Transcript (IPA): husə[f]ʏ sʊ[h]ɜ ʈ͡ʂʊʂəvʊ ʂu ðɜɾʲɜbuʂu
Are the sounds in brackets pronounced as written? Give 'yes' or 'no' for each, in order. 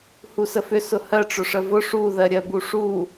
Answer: yes, yes

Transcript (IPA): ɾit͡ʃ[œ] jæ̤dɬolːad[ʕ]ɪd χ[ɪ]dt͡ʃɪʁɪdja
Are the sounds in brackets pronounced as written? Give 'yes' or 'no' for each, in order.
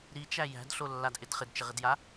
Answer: no, no, yes

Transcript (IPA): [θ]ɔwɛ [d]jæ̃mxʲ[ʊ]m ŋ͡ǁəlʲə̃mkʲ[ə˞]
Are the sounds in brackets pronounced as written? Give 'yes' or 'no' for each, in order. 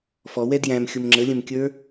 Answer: no, yes, yes, yes

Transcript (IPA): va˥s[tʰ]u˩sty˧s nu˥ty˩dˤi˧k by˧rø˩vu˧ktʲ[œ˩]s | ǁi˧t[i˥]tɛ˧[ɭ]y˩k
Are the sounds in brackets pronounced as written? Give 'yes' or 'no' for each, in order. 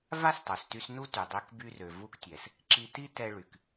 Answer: no, no, yes, yes

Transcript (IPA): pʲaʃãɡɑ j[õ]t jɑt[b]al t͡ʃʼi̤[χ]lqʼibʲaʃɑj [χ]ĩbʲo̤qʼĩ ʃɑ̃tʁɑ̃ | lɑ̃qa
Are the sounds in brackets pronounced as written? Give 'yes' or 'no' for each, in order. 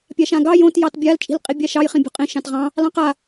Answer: yes, no, no, yes

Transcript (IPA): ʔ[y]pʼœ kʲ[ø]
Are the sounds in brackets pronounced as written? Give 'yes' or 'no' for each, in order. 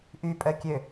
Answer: yes, yes

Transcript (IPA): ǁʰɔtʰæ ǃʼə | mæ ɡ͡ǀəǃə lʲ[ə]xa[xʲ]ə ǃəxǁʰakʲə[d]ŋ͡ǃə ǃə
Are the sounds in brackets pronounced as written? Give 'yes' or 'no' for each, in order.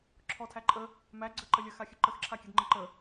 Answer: yes, yes, yes

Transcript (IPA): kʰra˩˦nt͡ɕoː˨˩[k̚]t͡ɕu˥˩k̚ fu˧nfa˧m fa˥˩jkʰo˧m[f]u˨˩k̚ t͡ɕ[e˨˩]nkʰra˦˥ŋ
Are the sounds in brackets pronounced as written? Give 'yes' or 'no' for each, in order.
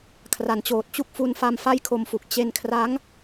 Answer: no, yes, no

